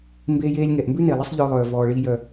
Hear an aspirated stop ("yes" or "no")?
no